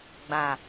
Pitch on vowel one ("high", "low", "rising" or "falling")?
low